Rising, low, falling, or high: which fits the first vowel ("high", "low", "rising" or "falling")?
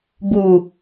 low